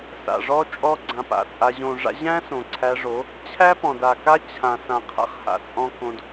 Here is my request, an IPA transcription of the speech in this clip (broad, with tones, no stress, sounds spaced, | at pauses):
s a̰˨ ʐ ɔ˦ t͡ʃʼ ɔ˦ ɡ͡ǀ ã˧ p a̰˨ t͡sʼ a˧ ʑ õ˨ ʐ a̰˧ ʑ æ̃˦ s õ˨ ǀʰ æ˧ ʐ o˨˦ | t͡ɕʰ æ˦ p ɔ̃˨ d a˨ k a˦ t͡ɕʰ ã˨ s ã˨ qʰ a̰˦˨ χ h a̰˧ t͡sʼ ɔ̃˦ k õ˦ d